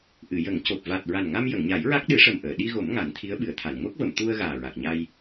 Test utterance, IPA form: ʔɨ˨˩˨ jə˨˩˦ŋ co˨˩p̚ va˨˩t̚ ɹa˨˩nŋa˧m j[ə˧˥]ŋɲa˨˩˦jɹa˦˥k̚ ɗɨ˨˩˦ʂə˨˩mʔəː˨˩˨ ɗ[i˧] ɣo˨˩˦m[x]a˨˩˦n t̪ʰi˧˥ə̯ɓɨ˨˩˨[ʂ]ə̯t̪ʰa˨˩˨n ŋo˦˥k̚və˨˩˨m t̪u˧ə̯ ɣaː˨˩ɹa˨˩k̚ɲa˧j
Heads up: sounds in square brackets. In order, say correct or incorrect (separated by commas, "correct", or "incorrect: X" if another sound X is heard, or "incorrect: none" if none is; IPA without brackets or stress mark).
incorrect: ə˨˩˨, correct, incorrect: ŋ, incorrect: none